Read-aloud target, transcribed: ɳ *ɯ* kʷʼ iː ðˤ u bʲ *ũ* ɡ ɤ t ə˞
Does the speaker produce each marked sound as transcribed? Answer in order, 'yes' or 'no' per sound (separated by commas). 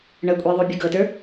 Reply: no, no